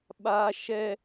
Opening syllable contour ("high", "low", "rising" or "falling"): high